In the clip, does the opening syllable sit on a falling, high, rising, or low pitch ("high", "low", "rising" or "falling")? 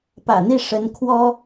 low